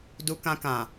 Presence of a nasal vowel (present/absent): present